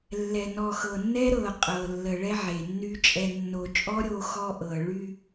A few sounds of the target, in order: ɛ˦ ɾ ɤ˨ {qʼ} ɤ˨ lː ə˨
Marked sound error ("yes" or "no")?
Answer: no